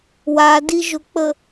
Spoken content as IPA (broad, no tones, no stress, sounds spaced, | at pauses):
w a d i ʒ ʊ k͡p ə